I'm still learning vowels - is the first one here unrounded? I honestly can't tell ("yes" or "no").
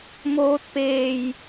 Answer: no